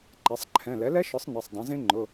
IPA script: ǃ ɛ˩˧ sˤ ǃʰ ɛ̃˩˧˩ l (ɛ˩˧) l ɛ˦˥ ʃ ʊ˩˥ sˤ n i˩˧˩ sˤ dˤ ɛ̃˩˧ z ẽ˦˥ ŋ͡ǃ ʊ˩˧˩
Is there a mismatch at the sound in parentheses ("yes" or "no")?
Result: yes